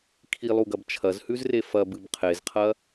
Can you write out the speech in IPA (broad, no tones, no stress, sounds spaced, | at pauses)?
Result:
kʰ i lˠ u ɡ ɐ b t͡ʃʰ ɐ z h ʉ z r e f ɐ b ɨ b qʰ e z qʰ ɐ